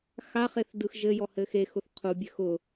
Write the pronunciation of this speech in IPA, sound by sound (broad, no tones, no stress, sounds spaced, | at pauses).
x a χ e θ d ɯ x ʒ ɘ j ɔ h ɘ x e x ʊ θ qʰ u bʲ ø x ʊ